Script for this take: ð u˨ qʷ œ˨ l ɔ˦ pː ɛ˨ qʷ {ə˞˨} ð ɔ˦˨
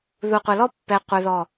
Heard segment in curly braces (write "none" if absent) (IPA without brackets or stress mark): ə˞˨